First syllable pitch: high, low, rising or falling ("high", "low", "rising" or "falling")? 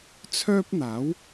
high